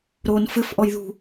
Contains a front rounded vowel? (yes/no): no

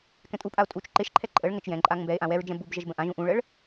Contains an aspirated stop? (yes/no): yes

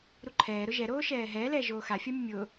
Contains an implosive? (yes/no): no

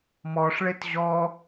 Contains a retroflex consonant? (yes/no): yes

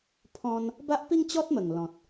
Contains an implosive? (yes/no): no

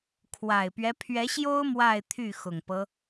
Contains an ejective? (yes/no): no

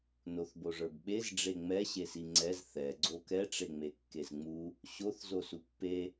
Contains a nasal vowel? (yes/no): no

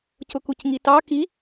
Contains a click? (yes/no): no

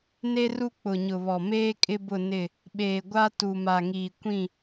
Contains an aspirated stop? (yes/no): no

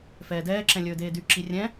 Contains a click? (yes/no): yes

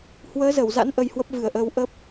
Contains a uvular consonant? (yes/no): no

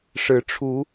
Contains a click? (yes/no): no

